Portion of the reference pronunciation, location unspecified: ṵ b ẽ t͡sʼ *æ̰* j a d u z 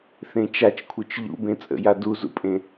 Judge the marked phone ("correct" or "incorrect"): incorrect